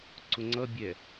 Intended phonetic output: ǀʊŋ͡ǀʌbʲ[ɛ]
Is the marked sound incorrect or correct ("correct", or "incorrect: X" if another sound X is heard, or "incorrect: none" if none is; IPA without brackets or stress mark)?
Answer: correct